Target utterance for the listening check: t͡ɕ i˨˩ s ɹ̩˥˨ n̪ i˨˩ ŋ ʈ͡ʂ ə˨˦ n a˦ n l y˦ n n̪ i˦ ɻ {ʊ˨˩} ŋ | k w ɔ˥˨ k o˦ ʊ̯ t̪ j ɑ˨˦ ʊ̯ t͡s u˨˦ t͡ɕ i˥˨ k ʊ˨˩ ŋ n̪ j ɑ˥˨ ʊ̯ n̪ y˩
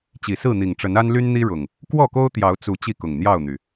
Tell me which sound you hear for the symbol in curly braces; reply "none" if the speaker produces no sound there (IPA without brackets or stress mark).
ʊ˨˩